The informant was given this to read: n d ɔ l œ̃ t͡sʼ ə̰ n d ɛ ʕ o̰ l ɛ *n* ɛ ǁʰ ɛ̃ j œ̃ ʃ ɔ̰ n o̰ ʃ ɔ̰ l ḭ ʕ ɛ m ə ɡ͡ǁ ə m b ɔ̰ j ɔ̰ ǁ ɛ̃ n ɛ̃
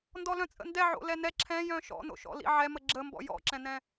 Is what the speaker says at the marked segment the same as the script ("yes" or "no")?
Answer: yes